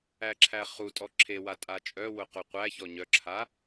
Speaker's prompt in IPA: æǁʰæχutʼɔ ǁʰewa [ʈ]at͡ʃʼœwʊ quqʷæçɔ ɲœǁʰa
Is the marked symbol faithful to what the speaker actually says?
no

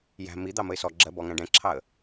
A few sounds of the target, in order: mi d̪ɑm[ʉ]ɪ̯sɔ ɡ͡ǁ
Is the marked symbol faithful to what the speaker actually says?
no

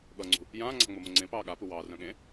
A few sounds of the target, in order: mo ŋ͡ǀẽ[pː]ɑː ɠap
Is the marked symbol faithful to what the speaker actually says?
no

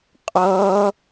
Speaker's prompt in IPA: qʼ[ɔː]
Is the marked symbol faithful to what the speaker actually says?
no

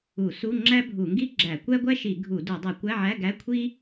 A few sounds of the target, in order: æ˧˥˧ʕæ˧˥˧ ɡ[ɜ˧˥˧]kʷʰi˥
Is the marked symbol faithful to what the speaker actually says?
no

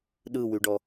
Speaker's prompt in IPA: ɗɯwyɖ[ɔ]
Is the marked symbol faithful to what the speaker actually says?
yes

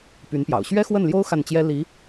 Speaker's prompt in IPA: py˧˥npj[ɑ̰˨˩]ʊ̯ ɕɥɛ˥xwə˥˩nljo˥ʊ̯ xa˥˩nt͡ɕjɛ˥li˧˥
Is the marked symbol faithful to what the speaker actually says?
yes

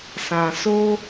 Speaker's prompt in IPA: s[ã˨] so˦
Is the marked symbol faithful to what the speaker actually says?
yes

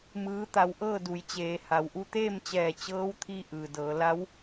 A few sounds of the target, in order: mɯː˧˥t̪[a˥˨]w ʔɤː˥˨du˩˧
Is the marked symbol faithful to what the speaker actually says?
no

